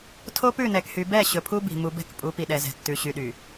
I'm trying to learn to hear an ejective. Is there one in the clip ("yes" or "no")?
yes